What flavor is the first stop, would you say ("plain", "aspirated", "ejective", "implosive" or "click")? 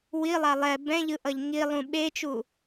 plain